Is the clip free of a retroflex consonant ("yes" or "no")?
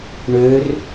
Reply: no